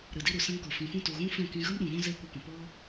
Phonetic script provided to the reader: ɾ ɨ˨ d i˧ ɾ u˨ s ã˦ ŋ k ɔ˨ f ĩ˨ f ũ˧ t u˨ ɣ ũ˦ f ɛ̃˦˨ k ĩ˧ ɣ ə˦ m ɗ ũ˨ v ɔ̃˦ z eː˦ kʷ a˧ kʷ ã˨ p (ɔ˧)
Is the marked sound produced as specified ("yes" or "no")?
no